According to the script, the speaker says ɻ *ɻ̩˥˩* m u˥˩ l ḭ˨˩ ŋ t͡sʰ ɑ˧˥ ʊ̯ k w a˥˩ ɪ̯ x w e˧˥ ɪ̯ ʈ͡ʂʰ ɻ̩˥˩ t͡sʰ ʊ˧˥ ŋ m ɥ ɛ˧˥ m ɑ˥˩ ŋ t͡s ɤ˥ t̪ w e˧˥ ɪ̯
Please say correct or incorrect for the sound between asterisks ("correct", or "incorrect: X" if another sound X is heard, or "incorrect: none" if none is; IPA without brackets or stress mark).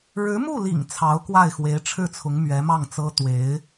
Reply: incorrect: ɻ̩˧˥